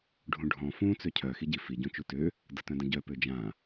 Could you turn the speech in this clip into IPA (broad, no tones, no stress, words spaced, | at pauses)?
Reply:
ɖʱũɖʱɔ̃ fũ t͡søcʰœ xiɟi fi ɟũt͡ʃutø | dətœ̃də̃ɟœ pød͡ʒã